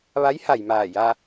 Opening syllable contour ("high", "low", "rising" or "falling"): rising